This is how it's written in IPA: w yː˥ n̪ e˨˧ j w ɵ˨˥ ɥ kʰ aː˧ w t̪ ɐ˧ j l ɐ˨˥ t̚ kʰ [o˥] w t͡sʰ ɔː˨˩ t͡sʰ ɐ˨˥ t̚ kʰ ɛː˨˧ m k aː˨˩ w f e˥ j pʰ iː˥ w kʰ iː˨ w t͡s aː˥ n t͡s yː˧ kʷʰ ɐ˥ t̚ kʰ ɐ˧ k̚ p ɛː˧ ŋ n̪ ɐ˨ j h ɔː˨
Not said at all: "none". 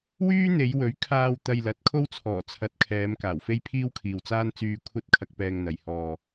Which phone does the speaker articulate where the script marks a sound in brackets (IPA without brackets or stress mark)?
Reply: o˥